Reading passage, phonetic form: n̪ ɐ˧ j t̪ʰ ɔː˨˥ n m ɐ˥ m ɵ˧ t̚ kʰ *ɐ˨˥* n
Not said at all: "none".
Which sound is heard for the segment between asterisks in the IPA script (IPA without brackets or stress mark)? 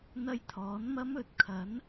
ɐ˨˥